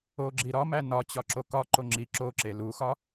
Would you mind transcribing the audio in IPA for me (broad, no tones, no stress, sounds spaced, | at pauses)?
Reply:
o ɡ͡ǁ i ɾ ɒ m æ n ɒ t͡ɕ ɒ ǁ o k ɒ ǃ o ŋ͡ǁ i ǁ o ǁ e l u x ɒ